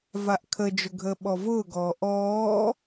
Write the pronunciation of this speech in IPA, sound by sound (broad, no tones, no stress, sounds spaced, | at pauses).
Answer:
v a ʔ kʰ ə d͡ʒ ʊ ɡʱ əː ɓ ɔ v ʊː ɡ ɔː ʔ ɔː